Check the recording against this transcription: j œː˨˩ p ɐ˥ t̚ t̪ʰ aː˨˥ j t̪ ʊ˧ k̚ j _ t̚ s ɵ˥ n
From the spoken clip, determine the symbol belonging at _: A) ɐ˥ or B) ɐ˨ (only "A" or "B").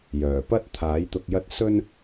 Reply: A